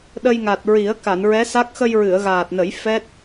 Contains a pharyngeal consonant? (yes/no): no